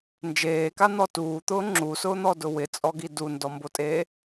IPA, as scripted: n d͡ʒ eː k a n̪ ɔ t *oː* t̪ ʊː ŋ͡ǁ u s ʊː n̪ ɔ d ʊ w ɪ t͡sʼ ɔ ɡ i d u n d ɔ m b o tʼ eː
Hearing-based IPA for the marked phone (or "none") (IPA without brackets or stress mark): uː